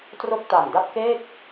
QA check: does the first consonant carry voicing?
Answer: no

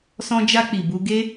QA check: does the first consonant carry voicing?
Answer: no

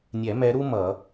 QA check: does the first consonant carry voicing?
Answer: yes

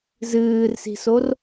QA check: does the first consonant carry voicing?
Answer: yes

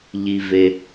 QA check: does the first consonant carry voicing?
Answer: yes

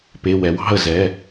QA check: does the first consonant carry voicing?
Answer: no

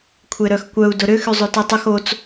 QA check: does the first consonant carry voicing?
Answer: no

